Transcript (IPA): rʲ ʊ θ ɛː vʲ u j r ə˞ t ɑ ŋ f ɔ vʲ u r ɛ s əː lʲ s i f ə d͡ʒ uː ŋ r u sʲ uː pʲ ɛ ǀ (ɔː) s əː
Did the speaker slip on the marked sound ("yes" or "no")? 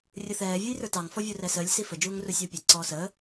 no